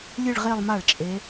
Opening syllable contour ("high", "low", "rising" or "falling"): falling